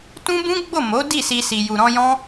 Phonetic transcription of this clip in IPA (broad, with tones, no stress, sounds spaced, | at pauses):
t ũ˦ b ũ˦ ɡ͡b o˦˨ m o˨˦ d i˦˨ s i˧ s i˨ j u˨ ɾ ɔ̃˧ j ɔ̃˦